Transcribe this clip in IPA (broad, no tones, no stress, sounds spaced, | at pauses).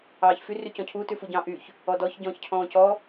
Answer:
ɑː ç f y r y c ɔ̃ cʰ u t ʉ f u ɟ ɑ̃ ʔ y ç | ɔ d ɔ ç ɟ ɔ̃ː ç cʰ ɔ̃ː c ɔ